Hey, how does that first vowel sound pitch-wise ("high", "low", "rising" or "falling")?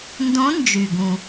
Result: rising